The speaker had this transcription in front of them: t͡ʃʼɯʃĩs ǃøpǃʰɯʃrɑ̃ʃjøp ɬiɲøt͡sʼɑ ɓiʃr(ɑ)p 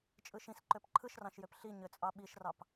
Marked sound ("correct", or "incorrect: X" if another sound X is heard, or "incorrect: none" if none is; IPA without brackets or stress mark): correct